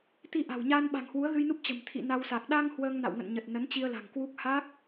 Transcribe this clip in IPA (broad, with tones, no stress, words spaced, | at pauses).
t̪i˧ʔa̤˨˩wɲaː˧n ɓa̤˨˩ŋhwu˨˦ə̯ɣɨ˧jnu˦˥p̚ t͡ɕə̤˨˩m t̪ʰḭ˧˨na˧wsa˨˩k̚ ɗa˧ŋ hwəː˧ŋna̰˧˨wŋə̰˧˨n ɲə˨˩t̚ nə˨˦nt͡ɕi˧ə̯la̤˨˩ŋkwu˦˥k̚ ha˦˥k̚